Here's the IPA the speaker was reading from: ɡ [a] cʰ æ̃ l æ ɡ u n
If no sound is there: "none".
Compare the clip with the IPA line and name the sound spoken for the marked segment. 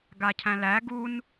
a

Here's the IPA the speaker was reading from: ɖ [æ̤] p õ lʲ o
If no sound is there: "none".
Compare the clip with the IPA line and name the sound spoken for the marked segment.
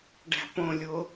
æ̤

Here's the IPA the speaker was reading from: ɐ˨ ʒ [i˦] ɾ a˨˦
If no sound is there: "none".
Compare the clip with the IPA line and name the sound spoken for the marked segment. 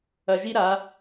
i˦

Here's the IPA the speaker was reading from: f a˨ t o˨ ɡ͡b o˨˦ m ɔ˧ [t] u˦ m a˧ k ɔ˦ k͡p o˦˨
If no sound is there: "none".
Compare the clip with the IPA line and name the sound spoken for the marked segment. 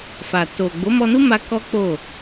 n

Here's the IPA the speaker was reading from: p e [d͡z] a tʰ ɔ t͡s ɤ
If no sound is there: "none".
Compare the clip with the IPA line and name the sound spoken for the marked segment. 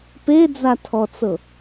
d͡z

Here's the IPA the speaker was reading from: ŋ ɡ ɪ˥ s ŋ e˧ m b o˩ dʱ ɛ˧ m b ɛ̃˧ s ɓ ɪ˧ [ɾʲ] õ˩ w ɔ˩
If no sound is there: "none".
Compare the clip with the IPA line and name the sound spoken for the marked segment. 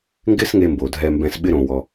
ɾ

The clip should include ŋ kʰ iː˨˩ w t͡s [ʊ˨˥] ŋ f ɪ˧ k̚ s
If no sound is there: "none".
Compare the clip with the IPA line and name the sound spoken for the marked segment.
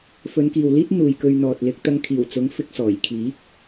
ʊ˨˥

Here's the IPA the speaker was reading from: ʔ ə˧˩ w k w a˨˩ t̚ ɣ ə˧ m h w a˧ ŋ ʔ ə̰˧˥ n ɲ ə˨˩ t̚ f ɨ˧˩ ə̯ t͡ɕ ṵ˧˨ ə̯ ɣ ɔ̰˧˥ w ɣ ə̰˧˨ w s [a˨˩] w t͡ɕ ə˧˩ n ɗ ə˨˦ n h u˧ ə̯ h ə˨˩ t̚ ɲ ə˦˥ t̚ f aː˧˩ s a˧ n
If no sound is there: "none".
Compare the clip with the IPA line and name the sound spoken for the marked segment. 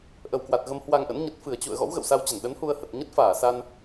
a˧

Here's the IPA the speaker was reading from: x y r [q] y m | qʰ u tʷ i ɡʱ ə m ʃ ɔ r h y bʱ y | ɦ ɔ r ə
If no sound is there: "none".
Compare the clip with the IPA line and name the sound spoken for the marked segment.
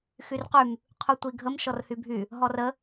q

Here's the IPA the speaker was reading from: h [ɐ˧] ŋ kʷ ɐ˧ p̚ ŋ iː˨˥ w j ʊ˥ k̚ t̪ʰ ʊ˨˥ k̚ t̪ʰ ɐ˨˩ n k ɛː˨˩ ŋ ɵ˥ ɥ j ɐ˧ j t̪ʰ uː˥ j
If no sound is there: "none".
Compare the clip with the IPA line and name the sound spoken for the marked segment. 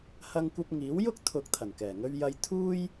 ɐ˧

